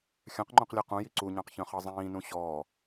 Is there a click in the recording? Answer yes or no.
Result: yes